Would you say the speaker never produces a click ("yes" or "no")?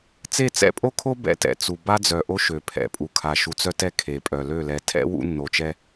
yes